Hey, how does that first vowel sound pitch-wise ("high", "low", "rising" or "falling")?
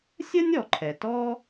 high